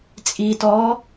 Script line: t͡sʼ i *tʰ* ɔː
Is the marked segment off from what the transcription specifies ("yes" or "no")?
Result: yes